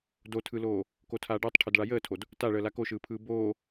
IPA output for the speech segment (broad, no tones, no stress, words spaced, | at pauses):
dotʰɯloː | kotʰaːɖəːtˤʈʰod ɭajəːtʰod | taɭəː lakoʃɯːpʰɯː boː